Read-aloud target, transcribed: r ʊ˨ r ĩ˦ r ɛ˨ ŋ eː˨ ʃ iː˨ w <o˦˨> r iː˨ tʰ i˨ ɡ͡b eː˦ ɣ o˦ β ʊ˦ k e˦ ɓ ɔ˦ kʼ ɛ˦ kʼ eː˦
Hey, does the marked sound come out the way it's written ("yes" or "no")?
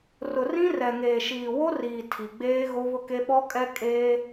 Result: no